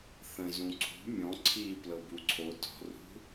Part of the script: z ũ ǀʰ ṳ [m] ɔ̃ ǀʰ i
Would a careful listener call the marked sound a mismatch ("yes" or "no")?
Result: yes